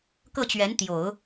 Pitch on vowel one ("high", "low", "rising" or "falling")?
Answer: falling